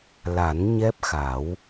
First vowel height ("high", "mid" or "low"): low